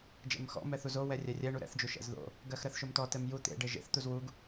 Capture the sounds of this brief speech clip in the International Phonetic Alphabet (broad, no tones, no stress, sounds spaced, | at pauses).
d͡ʒ ɛ̰ m x ɔ̰ m ɛ θ u z o w ɛ rʲ ɛ rʲ ɛ ɳ u ɾ ɛ̰ θ d͡ʒ u ʃ ɛ̰ z ð o̰ | ɡ ɜ x ɾ ɜ θ ʃ o m t ɔ t ɛ m j u t̪ ḛ ɖ e ʒ ḛ θ t̪ u z w u ɡ